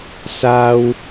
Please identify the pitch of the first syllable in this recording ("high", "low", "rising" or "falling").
low